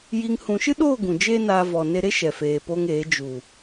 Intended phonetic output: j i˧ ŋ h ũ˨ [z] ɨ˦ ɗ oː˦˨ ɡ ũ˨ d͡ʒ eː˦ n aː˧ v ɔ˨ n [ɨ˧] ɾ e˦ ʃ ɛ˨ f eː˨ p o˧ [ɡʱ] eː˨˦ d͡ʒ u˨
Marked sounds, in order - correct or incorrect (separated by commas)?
incorrect, incorrect, incorrect